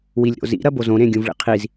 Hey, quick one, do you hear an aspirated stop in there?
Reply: yes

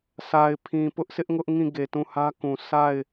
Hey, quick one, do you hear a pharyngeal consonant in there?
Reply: no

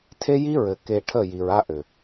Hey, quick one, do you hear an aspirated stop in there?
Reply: yes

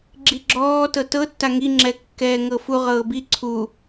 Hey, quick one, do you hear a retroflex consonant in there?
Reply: no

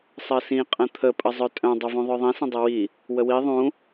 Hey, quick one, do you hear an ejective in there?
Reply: yes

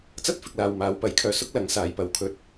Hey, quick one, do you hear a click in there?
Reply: no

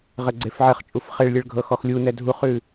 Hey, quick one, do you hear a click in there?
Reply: yes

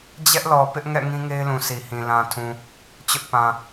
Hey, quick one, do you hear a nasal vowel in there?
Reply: yes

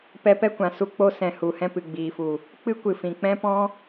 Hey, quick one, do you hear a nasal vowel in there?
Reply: yes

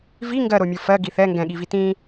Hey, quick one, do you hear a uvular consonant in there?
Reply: no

